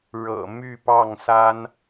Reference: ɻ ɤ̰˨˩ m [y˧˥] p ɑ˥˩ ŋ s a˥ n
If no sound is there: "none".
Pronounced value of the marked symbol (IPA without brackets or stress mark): y˥˧